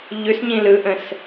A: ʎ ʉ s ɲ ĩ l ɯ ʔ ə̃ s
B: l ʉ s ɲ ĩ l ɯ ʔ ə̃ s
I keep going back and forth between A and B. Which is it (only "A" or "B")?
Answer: A